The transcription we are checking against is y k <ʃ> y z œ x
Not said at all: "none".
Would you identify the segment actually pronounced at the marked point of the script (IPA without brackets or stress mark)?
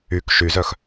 ʃ